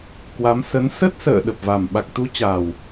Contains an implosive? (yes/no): yes